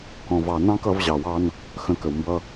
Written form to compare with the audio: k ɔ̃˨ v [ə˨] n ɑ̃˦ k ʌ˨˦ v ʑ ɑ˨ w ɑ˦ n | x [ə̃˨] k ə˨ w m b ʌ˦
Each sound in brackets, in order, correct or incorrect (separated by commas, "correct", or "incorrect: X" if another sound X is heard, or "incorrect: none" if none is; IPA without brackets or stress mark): incorrect: ɑ˨, correct